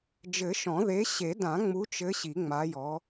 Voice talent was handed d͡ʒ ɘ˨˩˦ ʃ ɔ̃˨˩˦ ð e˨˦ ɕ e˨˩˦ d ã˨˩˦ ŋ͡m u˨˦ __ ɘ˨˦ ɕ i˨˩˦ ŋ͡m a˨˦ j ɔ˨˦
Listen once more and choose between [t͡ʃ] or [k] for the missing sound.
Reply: t͡ʃ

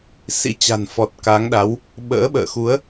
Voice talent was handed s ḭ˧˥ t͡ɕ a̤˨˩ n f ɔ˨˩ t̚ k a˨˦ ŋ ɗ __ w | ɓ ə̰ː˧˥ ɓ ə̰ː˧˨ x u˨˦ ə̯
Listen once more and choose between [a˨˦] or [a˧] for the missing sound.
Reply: a˨˦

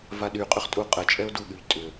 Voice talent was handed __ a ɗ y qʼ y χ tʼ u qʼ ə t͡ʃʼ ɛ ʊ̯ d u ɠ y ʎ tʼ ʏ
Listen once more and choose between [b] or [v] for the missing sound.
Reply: v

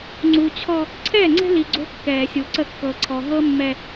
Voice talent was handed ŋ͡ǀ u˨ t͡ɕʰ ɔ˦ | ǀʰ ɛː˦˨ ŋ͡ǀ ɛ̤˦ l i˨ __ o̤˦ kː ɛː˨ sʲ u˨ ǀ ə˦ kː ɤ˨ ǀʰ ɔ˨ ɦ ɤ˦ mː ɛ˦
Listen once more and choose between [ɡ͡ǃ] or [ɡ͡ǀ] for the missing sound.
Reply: ɡ͡ǀ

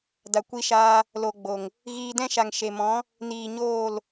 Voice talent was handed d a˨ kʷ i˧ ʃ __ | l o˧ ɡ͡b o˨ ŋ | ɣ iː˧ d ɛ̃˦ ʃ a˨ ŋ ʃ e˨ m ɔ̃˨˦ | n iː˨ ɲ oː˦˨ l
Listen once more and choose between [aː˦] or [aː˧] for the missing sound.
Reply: aː˧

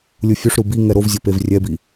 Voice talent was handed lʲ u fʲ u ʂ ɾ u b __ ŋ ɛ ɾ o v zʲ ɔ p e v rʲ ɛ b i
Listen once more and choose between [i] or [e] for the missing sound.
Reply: i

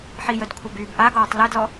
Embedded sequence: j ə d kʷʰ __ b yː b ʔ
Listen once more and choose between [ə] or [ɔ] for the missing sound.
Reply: ə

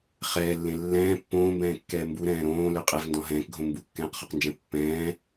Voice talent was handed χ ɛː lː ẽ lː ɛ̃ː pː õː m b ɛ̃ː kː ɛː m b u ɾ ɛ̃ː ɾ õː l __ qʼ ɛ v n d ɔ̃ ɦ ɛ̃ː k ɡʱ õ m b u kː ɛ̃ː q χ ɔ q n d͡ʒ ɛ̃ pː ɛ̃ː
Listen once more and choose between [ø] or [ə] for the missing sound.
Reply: ø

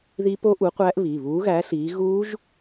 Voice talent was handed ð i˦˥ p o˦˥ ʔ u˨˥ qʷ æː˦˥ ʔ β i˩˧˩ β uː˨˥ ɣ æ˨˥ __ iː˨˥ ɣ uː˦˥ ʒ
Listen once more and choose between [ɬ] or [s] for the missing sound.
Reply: ɬ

